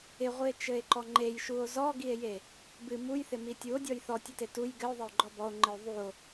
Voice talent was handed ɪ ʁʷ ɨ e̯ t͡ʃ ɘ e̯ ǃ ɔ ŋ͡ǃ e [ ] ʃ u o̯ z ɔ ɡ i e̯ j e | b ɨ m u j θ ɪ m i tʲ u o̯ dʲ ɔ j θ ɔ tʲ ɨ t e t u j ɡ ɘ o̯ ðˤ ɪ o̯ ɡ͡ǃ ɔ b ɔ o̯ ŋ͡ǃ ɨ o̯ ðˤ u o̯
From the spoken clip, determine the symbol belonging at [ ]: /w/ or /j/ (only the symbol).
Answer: j